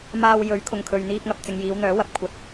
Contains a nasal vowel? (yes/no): no